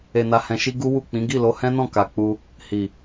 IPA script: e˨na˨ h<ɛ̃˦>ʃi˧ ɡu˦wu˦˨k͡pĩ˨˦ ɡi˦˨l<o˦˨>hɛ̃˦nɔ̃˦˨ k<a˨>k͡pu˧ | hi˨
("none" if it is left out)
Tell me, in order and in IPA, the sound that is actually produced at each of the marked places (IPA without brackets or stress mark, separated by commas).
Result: ɛ̃˨, o˧, a˨